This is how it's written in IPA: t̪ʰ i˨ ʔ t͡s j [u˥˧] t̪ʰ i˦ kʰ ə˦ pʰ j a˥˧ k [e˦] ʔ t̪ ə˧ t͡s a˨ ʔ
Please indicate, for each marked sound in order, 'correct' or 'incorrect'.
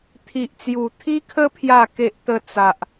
incorrect: u˨˩, correct

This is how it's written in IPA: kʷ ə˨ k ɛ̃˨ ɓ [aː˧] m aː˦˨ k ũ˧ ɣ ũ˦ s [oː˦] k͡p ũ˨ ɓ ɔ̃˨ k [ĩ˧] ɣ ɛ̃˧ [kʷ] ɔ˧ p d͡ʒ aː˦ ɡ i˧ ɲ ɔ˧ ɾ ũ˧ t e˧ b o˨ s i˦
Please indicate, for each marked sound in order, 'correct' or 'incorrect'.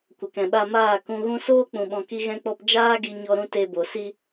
incorrect: a˧, correct, incorrect: i˧, incorrect: k͡p

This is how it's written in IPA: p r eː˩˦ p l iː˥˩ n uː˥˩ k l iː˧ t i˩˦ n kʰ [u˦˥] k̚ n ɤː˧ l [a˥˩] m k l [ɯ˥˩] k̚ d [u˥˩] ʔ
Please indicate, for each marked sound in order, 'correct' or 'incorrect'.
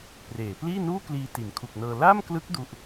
incorrect: u˨˩, correct, incorrect: ɯ˦˥, correct

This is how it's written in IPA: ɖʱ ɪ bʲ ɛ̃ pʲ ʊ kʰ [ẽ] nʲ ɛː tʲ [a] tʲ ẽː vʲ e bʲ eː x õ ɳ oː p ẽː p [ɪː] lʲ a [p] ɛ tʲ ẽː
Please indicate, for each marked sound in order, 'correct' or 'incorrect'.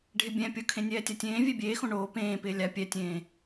correct, correct, correct, incorrect: pʲ

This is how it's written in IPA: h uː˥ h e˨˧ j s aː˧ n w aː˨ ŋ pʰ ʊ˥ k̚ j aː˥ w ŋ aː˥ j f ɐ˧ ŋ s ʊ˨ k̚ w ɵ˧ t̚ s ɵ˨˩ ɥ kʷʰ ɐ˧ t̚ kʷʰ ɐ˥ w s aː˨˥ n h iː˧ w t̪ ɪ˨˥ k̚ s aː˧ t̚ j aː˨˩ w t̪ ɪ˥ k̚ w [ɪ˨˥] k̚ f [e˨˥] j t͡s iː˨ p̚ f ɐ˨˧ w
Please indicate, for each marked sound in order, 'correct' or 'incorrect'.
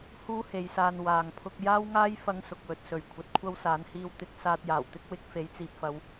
correct, correct

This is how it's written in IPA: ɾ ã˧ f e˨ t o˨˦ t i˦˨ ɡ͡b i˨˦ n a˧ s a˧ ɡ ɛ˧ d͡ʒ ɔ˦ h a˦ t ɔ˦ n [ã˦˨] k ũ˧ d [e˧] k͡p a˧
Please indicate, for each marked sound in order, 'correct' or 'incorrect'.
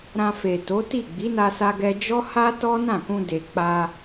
correct, incorrect: e˨

